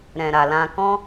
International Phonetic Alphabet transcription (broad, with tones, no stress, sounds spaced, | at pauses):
ɾ ɛ̃˨ ɾ a˨ l ã˧ k ɔ̃˦